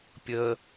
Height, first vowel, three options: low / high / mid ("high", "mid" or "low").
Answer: mid